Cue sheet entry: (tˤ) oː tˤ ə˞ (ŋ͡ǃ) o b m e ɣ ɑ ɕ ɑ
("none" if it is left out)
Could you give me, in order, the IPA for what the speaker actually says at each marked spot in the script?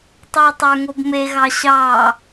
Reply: tˤ, ŋ

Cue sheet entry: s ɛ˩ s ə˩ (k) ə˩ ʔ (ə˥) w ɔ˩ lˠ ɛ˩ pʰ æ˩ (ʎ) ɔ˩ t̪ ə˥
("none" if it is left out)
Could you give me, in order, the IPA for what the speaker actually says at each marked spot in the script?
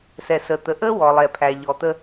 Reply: t̪, ə˥, ʎ

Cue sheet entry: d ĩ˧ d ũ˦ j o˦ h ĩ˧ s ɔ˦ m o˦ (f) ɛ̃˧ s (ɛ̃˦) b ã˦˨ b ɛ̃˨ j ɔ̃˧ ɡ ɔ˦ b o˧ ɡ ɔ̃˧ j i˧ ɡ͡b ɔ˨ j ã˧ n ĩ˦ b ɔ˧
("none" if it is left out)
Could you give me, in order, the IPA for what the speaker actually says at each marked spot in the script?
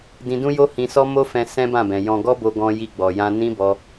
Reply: f, ɛ̃˦

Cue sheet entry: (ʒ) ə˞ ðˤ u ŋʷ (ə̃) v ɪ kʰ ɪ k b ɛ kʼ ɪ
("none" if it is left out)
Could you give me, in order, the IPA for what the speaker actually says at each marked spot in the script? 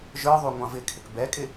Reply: ʒ, ɑ̃

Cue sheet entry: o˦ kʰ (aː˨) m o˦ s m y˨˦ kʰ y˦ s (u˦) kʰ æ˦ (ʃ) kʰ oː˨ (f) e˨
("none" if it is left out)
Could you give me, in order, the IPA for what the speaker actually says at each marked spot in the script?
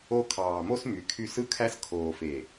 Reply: ɑː˨, ɯ˦, s, f

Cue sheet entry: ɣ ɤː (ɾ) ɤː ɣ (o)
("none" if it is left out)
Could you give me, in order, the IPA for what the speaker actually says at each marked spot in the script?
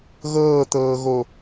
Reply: t̪, o

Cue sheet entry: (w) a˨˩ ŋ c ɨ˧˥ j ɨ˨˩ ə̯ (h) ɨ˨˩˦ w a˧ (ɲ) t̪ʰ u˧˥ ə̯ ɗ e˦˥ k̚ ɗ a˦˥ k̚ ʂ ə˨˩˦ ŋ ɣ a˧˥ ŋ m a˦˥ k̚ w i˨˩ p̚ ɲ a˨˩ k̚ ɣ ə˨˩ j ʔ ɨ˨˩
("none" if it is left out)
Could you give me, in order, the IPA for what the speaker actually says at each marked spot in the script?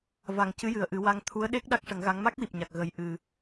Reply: v, ʔ, ŋ

